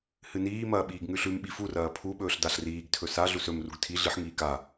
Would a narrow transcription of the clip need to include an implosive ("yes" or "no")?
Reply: yes